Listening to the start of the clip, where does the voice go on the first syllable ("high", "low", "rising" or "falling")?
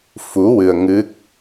rising